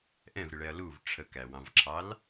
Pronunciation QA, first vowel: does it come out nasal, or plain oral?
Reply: nasal